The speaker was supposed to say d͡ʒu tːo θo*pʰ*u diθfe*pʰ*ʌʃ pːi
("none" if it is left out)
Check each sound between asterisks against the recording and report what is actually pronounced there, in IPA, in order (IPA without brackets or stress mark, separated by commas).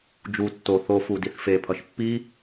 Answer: f, pʰ